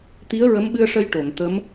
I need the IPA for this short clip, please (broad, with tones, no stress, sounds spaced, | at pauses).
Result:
t̪ i˧˥ ə̯ ɹ ə˧˥ m ɓ ɨ˧ ə̯ ʂ ə˧ j ʈ o˨˩˨ ŋ t̪ ə˧˥ m